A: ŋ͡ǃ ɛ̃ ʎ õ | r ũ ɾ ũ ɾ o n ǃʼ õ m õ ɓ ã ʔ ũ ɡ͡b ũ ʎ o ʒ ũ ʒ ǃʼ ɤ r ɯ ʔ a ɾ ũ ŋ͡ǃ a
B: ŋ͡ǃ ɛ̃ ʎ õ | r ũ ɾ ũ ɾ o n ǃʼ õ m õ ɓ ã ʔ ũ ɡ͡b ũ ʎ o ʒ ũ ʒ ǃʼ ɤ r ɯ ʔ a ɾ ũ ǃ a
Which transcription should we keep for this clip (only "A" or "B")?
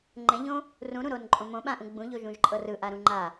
A